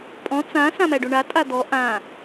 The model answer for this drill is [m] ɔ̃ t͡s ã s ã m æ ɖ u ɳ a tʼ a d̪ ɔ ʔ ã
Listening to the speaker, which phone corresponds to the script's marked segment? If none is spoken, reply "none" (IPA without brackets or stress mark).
pʼ